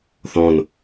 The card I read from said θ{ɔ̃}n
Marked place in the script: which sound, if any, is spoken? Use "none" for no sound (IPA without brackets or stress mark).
ɔ̃